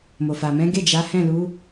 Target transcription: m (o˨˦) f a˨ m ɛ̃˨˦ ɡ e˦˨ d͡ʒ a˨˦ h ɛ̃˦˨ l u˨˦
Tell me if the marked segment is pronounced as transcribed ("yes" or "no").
no